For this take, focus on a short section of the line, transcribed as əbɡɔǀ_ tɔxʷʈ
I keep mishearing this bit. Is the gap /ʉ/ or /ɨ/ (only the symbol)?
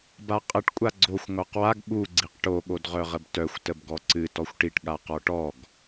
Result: ɨ